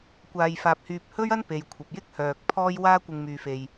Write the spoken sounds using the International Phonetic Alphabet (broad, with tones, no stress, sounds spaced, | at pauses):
kʷ aː˧ j f aː˧ p̚ h yː˧ p̚ h ɵ˥ ɥ ɐ˥ n p e˨ j kʷʰ ɐ˨ p̚ j ɪ˥ k̚ h œː˧ k̚ pʰ ɔː˥ j w aː˥ kʷ ɪ˧ ŋ m yː˧ f e˧ j